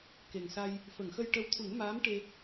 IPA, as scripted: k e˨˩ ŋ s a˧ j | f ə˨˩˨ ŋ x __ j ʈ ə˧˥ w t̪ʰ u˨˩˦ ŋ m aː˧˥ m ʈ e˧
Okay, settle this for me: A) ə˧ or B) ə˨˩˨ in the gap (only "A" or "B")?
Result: A